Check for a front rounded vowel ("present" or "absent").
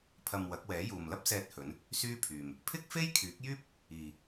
present